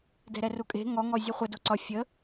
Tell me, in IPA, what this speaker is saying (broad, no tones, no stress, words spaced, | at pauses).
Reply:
dɛ̤ɾɛrukʼe̤ ŋɔ ŋɔzʲuχʷə doǀɒ fʲə